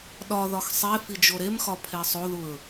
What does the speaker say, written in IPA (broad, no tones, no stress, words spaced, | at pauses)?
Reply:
ɗɒðɒx sˤe fid͡ʒoɾemxɒ pʰesˤoðuɹ